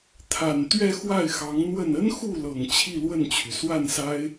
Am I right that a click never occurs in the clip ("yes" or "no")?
yes